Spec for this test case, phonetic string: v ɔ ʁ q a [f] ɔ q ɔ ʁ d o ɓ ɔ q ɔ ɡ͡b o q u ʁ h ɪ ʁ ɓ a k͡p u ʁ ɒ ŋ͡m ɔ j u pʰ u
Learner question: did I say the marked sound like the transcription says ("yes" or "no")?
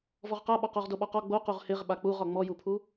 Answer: no